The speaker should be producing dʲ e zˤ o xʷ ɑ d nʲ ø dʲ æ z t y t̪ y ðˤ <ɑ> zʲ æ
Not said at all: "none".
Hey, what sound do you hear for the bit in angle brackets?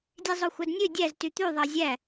ɑ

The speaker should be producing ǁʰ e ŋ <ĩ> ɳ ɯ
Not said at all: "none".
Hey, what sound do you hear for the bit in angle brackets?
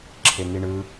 i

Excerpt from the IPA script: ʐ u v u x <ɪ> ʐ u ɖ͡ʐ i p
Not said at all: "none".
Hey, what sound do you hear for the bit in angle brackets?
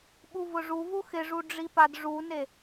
ɪ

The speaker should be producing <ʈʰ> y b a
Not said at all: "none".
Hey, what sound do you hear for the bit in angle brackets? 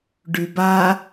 ɖ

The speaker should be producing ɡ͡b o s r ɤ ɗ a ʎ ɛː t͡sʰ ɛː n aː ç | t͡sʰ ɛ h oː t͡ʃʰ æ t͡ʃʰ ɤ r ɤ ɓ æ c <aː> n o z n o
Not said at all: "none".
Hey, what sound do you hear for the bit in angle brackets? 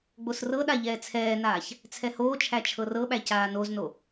aː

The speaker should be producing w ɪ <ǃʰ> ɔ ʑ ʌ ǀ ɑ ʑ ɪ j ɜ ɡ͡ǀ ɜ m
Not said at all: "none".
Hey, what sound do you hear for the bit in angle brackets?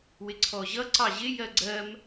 ǀʰ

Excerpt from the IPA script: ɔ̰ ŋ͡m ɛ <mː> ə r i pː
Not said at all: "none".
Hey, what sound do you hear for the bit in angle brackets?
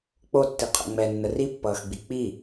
nː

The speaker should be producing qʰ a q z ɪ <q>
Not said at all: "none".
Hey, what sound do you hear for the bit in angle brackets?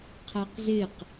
q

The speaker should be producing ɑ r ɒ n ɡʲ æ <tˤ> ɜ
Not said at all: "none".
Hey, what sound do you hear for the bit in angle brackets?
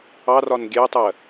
tˤ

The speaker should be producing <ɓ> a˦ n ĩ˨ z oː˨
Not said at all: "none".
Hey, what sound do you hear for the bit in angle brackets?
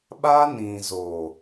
ɓ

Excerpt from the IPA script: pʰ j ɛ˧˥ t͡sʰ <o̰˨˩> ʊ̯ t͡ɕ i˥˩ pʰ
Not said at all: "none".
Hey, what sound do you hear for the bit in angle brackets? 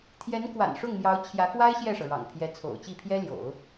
o̰˨˩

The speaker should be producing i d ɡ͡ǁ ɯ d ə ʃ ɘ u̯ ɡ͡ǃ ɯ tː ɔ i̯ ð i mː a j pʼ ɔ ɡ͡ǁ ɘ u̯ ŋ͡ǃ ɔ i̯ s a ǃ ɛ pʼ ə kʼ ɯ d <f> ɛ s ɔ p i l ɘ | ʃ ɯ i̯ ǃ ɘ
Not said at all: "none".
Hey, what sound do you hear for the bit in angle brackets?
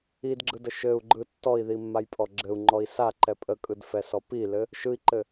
f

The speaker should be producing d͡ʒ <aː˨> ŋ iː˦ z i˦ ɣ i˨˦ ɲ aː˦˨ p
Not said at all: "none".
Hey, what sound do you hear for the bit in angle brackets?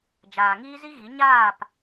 aː˨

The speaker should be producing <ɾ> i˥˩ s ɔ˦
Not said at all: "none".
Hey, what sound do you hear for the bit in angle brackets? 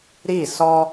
ɾ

